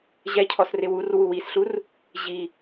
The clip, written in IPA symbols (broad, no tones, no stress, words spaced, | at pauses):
ʑɛcʰɔsrɪw urwu wisɬur | ʑi